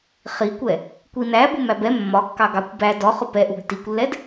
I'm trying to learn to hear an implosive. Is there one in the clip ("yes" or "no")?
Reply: no